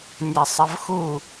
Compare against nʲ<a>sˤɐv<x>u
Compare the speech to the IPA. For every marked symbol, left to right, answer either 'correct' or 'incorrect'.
correct, correct

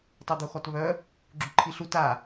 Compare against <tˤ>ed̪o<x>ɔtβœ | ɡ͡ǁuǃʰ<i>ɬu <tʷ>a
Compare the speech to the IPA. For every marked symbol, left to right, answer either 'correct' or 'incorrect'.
correct, correct, correct, incorrect

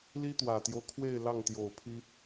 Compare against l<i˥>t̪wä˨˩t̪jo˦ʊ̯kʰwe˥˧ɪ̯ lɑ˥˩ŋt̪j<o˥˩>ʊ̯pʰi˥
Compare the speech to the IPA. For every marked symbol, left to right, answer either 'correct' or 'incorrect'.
correct, incorrect

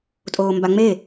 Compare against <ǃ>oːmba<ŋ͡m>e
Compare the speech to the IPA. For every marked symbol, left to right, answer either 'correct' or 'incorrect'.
incorrect, correct

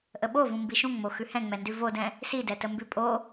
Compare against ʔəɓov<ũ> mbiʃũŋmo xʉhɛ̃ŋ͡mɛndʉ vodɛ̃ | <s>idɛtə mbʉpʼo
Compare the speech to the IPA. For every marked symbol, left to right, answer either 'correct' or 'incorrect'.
correct, correct

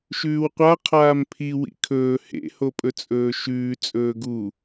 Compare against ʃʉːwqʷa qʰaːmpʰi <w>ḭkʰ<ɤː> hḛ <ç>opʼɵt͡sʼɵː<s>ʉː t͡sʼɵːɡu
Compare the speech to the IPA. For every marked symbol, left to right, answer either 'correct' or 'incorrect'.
correct, incorrect, incorrect, incorrect

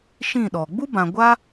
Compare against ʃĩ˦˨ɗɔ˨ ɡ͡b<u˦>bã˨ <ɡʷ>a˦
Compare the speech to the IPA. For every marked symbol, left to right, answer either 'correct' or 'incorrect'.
correct, correct

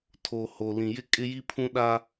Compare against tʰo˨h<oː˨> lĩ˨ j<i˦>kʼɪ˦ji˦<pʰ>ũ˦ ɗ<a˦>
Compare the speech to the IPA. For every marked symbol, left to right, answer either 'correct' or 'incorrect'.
incorrect, incorrect, correct, correct

